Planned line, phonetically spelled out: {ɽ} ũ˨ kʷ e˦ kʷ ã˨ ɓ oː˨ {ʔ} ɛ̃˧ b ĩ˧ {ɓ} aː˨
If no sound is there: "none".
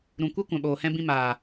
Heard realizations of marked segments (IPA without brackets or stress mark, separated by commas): ɾ, h, m